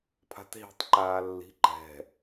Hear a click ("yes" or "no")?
yes